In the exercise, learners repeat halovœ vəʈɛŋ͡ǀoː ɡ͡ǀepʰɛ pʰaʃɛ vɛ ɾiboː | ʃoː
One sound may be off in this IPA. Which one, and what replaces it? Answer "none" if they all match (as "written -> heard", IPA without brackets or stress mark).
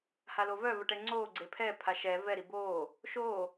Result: none